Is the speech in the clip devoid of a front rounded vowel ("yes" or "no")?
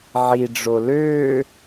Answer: no